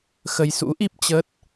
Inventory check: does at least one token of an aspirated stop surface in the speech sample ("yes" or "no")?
no